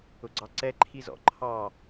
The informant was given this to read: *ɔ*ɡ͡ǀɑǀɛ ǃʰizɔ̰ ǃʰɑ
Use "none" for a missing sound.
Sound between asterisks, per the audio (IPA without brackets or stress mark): ʊ